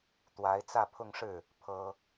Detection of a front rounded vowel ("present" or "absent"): absent